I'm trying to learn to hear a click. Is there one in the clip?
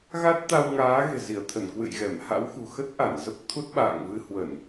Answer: no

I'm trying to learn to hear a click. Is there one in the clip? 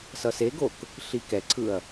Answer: yes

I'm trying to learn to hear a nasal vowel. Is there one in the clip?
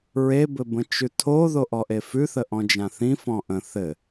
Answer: yes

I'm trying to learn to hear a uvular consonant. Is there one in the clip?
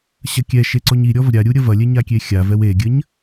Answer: no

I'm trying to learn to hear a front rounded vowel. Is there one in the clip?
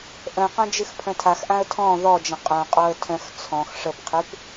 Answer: yes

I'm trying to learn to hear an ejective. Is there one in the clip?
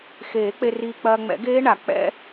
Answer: no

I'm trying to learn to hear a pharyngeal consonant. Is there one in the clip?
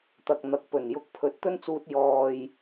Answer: no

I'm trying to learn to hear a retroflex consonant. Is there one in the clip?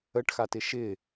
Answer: yes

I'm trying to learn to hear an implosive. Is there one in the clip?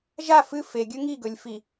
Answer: no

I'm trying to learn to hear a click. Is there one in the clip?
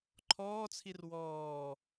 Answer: yes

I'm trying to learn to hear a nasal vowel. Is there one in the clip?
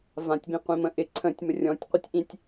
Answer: yes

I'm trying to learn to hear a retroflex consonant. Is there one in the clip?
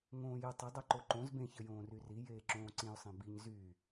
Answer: no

